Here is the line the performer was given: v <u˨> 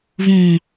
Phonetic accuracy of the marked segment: incorrect: ũ˨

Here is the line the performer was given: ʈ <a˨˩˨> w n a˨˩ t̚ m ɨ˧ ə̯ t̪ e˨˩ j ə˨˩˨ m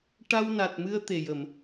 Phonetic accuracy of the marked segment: incorrect: a˧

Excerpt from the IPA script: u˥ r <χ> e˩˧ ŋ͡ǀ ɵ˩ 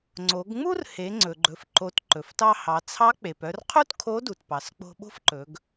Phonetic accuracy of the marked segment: incorrect: h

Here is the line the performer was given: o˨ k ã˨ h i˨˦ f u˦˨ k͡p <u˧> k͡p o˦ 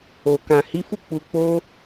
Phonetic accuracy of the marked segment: correct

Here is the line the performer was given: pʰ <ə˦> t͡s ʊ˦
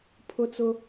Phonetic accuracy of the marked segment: incorrect: ʊ˦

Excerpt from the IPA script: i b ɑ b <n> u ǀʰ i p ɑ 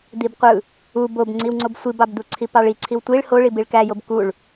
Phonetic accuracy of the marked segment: incorrect: d̪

